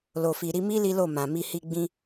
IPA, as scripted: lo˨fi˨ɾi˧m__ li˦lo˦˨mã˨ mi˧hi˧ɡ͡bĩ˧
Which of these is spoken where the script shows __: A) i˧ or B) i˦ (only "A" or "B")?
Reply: B